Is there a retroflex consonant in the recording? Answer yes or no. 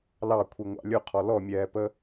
no